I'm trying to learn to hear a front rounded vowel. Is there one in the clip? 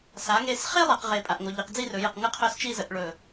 yes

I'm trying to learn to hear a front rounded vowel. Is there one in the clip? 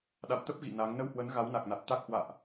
no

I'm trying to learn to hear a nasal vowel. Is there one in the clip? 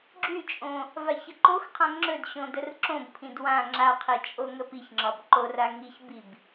yes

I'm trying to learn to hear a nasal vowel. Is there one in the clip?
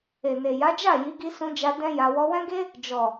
yes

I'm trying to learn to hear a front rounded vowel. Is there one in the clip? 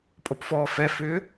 yes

